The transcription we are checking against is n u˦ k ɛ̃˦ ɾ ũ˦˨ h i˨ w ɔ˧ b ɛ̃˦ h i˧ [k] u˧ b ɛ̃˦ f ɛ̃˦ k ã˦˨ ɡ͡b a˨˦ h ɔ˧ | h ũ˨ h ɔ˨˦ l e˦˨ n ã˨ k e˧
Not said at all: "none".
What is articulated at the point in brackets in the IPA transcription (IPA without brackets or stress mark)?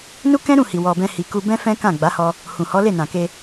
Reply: k